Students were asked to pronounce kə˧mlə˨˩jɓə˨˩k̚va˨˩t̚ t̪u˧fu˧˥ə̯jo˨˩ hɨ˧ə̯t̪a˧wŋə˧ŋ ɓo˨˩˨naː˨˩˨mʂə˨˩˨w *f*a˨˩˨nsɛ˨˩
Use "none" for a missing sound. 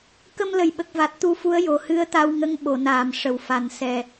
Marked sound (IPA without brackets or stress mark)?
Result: f